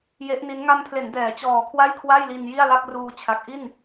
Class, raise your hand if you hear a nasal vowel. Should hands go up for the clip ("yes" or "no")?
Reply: no